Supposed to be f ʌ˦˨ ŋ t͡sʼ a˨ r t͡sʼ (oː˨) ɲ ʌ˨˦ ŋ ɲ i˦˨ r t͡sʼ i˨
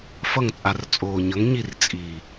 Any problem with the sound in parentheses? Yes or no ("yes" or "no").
no